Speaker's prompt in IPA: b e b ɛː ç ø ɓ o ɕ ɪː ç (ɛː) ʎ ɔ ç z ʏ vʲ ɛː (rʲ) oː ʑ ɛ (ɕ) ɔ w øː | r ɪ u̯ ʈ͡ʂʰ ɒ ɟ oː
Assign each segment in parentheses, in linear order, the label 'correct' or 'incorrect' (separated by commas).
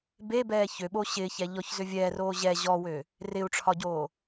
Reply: incorrect, incorrect, incorrect